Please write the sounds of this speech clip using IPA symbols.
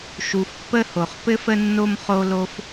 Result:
ʃ u˨ f pː ə˥ h o˩ χ p ɘ˥ f ə˥ nː o˥ m χ o˦ l o˦ f

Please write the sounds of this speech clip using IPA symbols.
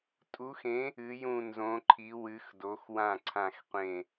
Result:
tʼ u˨˥ x ẽ˨˥ | ɨ˨˥ j ũ˦˨ n z õ˨˥ ǃʰ i˨˥ w ɨ˨˥ x d o˨˥ x w ã˦˨ ǀʰ ã˦˨ x qʷ ẽ˦˨

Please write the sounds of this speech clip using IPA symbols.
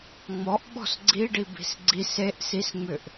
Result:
ŋ͡m ɔ ʔ ɓ ɔ̤ s ɡ͡ǀ i ɖ i b i̤ s ɡ͡ǀ i s e ʔ s i s ŋ͡m ʏ ʔ

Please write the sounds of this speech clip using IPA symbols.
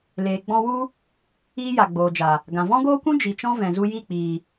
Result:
l eː˨ ɡ͡b ɔ̃˧ w u˦ | iː˦ j a˨ ɡ͡b oː˨ d͡ʒ a˨ | ɡ ã˨ v ɔ̃˦ ɡ oː˦ kʷ ũ˦ d͡ʒ i˨ t͡ʃ ɔ̃˦ v ɛ̃˨ z u˧ j i˦˨ k͡p iː˨

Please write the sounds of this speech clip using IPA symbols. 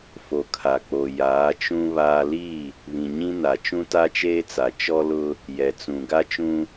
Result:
f o˨ kʰ a˨ k͡p o˨ j aː˨˦ t͡ʃ ũ˦ β aː˦ l i˦˨ | β ĩ˨ ɲ ĩ˦ n a˨ t͡ʃ ũ˦ t a˦ t͡ʃ eː˦ t͡s a˨ t͡ʃ ɔ˦ l ʊ˦ | j ɛ˨ t͡s ũ˨ ɡ a˦ t͡ʃ ũ˦

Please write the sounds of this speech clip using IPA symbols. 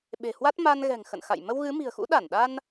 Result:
ɓ e̤˨˩ h w a˦˥ t̚ m a˧ n ɣ ɛ̤˨˩ ŋ x ə̰˧˨ n x a̰˧˨ j m ə˧ w ɣ ɨ˨˦ m i̤˨˩ ə̯ x ṵ˧˥ ɗ a˧˩ n ɗ a˧ n

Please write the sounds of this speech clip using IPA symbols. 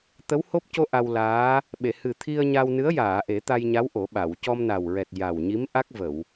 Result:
t̪ ə˧˥ w h o˦˥ p̚ c o˧ ʔ a˧ w l aː˧˥ | ɓ e˨˩˨ h ɨ˨˩ t̪ʰ i˧ ə̯ ɲ a˧ w n ɨ˧˥ ə̯ j aː˨˩˨ ʔ e˨˩˦ t̪ a˧ j ɲ a˧˥ w ʔ o˨˩˦ ɓ a˨˩˨ w c ɔ˧ m n a˨˩ w ɹ ɛ˨˩ t̚ j a˨˩ w ɲ i˧˥ m ʔ a˦˥ k̚ v ə˨˩˨ w

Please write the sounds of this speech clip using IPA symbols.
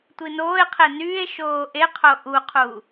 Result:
tʷ i n oː e̯ qʰ e n yː e̯ ʃ oː ʔ e qʰ o ʔ u qʰ u

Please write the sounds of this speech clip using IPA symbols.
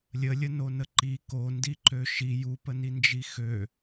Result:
lʲ ə lʲ ə n o n ə ǃ i k o n d i ǃ ø ʃ i j u p ə n i n d͡ʒ i x ø

